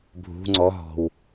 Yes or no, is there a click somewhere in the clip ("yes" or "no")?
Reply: yes